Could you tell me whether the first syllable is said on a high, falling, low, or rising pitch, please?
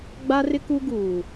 high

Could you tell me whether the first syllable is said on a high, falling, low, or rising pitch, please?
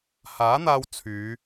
rising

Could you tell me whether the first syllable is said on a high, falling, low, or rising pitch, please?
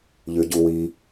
low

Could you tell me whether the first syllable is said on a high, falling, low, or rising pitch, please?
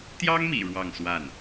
high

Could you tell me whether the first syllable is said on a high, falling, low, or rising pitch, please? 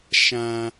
low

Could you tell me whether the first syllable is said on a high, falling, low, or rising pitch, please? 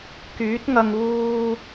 rising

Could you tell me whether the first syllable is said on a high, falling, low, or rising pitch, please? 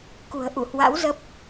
low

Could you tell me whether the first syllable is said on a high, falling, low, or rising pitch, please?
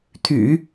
low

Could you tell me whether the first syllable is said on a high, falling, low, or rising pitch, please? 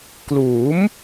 rising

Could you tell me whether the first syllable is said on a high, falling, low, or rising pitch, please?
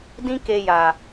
high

